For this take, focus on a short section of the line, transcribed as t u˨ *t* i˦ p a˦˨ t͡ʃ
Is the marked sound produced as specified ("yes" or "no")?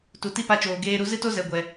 yes